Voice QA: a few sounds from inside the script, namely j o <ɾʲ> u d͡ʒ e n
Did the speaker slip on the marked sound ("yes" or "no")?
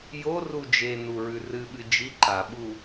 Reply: yes